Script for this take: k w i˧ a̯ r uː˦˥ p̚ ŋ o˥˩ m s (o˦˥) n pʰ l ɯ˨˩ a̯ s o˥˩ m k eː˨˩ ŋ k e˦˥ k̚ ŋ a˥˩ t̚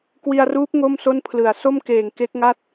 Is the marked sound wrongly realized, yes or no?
yes